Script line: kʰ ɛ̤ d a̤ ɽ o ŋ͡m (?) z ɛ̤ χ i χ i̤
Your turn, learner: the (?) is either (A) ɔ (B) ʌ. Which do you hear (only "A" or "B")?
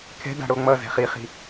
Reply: B